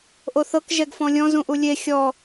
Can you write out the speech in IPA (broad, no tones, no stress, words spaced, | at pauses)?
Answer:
ʔoθɤk ʒɛɡfɔ̃lʲɔ̃ zũʔulʲe xʲɔ